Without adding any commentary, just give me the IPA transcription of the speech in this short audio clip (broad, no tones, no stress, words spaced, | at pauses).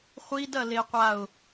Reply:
χʷidɐleqʷaʊ̯